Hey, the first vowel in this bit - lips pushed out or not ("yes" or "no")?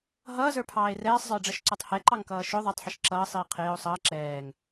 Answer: no